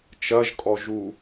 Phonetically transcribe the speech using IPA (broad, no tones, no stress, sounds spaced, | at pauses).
t͡ʃ ɐ ʒ kʼ ɔ ʒ u